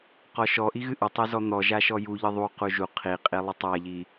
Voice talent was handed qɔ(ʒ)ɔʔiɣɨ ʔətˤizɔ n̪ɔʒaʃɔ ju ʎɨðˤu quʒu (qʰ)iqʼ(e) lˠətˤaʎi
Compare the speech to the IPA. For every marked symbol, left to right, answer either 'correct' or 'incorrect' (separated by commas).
incorrect, correct, incorrect